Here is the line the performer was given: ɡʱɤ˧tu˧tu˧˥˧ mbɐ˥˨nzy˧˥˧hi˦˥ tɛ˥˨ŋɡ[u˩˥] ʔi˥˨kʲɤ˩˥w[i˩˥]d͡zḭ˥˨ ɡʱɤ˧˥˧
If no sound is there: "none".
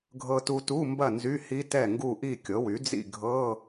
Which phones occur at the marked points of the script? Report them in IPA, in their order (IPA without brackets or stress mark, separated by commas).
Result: u˥˨, y˩˥